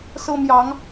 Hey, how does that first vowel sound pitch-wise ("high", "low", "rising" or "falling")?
high